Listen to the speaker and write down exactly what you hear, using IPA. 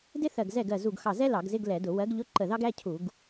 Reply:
d ɪ˥ θ ɜ˧˩ ɡ z ɛ˥˩ ɡ ɜ˧˩ z u˧˩ ɡ x ɑ˧˩ z ɛ˥ l ɑ˧˩˧ ɡ z ɪ˧˥˧ ɡ l ɛ˧˩˧ d ʊ˧˩˧ w ɜ˨˥ ɡ ʎ ʊ˧˥˧ ǃ ə˧˩ ð ɑ˥ ɡ æ˧˥˧ cʰ u˧˩˧ ɡ

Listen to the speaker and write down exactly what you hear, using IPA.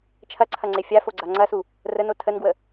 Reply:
t͡ʃʰ ɐ ǀʰ ɐ ŋ͡ǀ e fʲ a f o ɡ͡ǀ a ŋ͡ǀ ɐ s u | r ə n o tʰ ə n ɡ w ə

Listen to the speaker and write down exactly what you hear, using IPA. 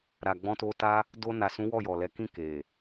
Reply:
ɾ a˨ ɡ͡b ɔ̃˧ t o˧ t a˦ | d o˧ n a˨ s ũ˨˦ w ɔ˦˨ j ɔ˨ l ɛ˨˦ k ĩ˦˨ k e˨

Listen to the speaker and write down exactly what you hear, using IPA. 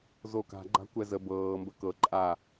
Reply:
z o k a̤ ɡ͡ǃ a̤ kʷ ɛ z ə b ɤː m b ə k ɤ ǃʼ a

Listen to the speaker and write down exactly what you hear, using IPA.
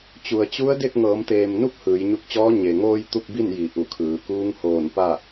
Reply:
t͡ɕ u˩ ə̯ t͡ɕ u˧˥ ə̯ d e˥˨ k̚ ŋ ɤː˩˧ m t̪ eː˩ m n u˥˨ p̚ h ɯː˩˧ j ɲ u˧ k̚ t͡ɕ ɔː˧˥ ɲ e˩ ŋ oː˧ j t̪ u˥˨ k̚ b i˥˨ n j i˩˧ ʔ u˧˩ kʰ ɯː˩˧ k uː˧˥ ŋ h oː˧˩ n p a˥˨

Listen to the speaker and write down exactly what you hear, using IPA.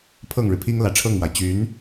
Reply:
pʰ ɤ˥˩ ŋ ɻ ɻ̩˩ pʰ i˥ ŋ l ä˨˩ ʈ͡ʂʰ ɤ˥˩ ŋ m w a˩ ɪ̯ t͡ɕ y˧˥ n

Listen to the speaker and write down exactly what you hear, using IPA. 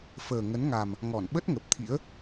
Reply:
f əː˨˩ ŋ ə˨˦ n ŋ a˨˩ m | ŋ ɔ˧˩ n ɓ ə˦˥ t̚ ŋ ə˨˩ p̚ t̪ʰ ḭ˧˥ ə̯

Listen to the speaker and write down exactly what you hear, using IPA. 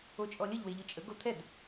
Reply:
o t͡ʃʼ ɔ lʲ ə ʎ w e ʎ ɯ t͡ʃʼ ə ɡ o t̪ʰ ɛ d

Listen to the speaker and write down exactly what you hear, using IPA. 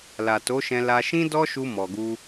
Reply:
l a˨ t o˨˦ ʃ ɛ̃˧ l a˧ ʃ ĩ˦ d ɔ˦ ʃ u˧ m ɔ˨ ɡ u˧

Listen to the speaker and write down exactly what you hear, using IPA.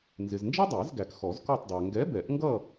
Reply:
n z ɪ˨ z n d͡ʒ ʌ˥ dˤ æ˨˩˦ z ɡ æ˨ k x ɔ˨˩˦ z k ɔ˦˨ tˤ dˤ æ˨ ŋ ɡ ɛ˨˥ b ɛ˨˩˦ ʔ ŋ ɡ ʌ˦˨

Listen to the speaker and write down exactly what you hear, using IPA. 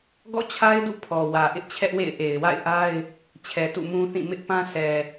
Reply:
ɡ ɔ̰˦˨ t͡ɕʰ a˦ ɪ̯ d ṵ˦˨ pʰ ɔ˨ w ä˨ ʔ ɪ˦ ʔ t͡ɕʰ ɛ˦ ʔ w ḛ˦˨ ɪ̯ ʔ e˨ ɪ̯ w a̰˦˨ ɪ̯ ʔ a˦ ɪ̯ | t͡ɕʰ ɛ˨ t ṵ˦˨ m ũ˦ θ ĩ˦˨ m ɪ˦ ʔ p ã˦ sʰ ɛ˨

